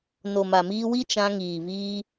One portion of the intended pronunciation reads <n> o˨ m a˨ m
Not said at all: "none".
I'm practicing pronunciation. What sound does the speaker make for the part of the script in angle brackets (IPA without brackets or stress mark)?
n